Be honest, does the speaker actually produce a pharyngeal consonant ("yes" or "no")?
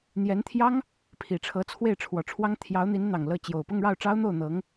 no